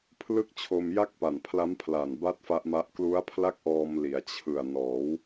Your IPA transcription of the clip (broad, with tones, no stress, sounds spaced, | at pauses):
pʰ l ɯ˥˩ k̚ t͡ɕʰ o˧ m j a˥˩ k̚ p a˨˩ n pʰ l a˦˥ m pʰ l a˨˩ n b a˥˩ t̚ f a˦˥ ʔ m a˦˥ ʔ k l u˦˥ a̯ pʰ l a˥˩ k̚ ʔ ɔː˧ m l i˩˦ a̯ t͡ɕʰ ɯ˨˩ a̯ n ɔː˩˦ w